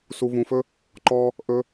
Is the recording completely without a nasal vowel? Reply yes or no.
no